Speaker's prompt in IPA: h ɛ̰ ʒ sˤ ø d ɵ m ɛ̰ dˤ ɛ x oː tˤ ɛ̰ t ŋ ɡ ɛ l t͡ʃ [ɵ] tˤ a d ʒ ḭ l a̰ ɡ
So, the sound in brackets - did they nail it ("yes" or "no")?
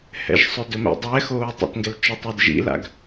yes